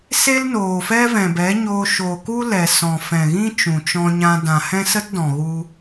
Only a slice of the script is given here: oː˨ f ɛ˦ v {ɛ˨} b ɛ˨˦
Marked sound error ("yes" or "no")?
yes